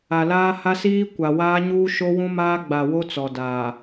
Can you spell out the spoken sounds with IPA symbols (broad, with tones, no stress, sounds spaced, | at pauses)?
a˨ l aː˦ h a˦ s iː˦ kʷ a˨ w aː˦ ɲ uː˦ ʃ o˦ w ũ˦ m aː˦ ɡ͡b a˨ w o˦ t͡s ɔ˨ d aː˨